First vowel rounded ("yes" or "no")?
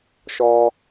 yes